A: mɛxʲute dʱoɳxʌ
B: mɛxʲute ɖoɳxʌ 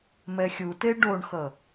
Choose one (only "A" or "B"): B